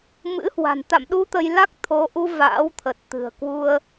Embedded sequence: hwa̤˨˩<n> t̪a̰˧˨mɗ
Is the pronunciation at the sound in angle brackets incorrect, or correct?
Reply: correct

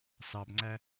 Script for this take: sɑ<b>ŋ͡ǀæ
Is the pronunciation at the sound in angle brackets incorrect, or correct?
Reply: correct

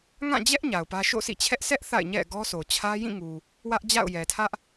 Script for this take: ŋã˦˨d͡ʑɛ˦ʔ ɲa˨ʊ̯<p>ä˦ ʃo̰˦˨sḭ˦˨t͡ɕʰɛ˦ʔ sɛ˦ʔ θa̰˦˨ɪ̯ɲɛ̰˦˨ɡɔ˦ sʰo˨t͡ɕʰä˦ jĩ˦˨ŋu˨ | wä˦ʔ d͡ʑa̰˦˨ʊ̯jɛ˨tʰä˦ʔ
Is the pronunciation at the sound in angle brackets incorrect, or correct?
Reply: correct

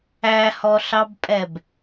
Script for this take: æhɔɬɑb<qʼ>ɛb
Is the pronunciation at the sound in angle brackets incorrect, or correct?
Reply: incorrect: pʼ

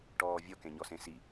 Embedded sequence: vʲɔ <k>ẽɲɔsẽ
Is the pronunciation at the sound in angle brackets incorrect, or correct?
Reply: correct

